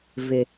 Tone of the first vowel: low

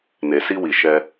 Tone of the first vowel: low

